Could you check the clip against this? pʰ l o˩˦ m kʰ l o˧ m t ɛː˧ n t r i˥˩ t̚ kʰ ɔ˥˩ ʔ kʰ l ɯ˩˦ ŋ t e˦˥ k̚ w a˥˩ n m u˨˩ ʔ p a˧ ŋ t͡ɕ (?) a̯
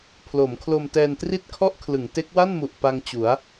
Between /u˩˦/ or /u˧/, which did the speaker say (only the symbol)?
u˩˦